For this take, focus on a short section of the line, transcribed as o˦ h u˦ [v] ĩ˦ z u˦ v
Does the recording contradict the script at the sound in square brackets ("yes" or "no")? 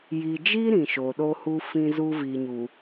yes